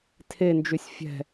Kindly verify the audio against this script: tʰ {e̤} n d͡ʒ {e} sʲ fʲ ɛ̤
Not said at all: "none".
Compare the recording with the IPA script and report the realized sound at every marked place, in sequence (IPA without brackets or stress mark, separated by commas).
e, y